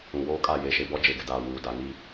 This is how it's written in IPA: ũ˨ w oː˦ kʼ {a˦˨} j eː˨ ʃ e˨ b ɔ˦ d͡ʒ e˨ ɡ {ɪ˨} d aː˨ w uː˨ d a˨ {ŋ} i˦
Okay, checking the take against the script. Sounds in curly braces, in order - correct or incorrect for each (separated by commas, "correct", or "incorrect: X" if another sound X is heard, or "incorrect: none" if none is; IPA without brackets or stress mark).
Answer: correct, correct, correct